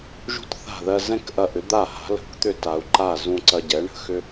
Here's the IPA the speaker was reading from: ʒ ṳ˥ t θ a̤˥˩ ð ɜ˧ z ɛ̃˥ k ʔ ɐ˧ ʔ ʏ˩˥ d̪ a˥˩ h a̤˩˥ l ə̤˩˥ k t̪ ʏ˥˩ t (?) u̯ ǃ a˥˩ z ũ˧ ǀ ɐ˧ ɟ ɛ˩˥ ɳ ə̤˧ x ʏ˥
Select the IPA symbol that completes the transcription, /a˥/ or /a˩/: a˩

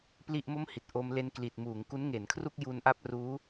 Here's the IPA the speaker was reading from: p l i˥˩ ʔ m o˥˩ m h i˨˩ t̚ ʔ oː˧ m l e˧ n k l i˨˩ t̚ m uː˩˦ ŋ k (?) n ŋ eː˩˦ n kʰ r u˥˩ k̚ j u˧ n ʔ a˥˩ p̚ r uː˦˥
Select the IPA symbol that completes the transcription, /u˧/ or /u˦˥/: u˦˥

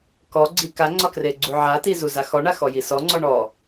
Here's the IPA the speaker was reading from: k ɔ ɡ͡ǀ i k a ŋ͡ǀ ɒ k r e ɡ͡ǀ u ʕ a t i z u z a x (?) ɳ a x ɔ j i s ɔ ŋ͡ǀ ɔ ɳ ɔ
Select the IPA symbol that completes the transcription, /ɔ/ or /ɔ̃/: ɔ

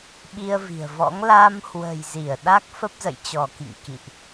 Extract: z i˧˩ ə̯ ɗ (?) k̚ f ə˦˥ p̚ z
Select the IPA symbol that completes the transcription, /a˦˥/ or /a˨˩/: a˦˥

